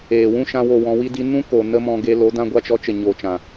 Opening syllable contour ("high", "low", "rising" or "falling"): low